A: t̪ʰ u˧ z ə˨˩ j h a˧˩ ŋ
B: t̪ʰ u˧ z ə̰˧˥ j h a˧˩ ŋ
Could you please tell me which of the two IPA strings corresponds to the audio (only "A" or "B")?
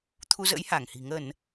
B